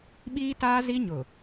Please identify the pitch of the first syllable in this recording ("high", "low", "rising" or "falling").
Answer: high